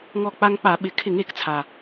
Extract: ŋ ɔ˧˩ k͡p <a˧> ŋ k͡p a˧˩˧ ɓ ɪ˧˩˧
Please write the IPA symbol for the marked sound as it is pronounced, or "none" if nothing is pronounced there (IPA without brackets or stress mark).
a˧